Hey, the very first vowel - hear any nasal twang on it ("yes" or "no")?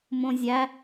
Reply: yes